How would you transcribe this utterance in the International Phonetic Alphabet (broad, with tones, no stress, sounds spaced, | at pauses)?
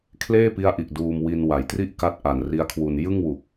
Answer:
kʰ l eː˥˩ p i˦˥ a̯ ʔ i˨˩ ʔ d uː˧ m w i˧ n w a˩˦ j t r i˥˩ ʔ k a˦˥ t̚ ʔ a˨˩ n r i˦˥ a̯ kʰ w u˧ n j ɯ˥˩ ŋ w u˨˩ k̚